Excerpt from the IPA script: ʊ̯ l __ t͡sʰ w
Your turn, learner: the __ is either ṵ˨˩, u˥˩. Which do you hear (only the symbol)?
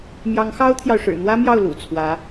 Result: ṵ˨˩